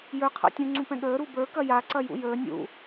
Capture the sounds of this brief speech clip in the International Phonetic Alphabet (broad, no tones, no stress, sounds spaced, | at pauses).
j ə˞ qʰ a̰ tʲ ũ ŋ͡ǀ ũ p ɛ̃ ɠ əː ɾ u b ə˞ k ɐ j a ǀ ɐ j ṵ j əː nʲ ṵ